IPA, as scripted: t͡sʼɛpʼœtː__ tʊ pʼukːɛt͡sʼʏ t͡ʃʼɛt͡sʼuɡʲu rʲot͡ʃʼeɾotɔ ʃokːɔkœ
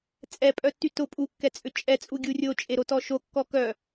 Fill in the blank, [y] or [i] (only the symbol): y